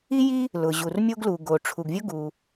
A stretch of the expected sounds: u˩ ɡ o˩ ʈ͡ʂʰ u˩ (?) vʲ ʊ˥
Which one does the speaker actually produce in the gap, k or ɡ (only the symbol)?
ɡ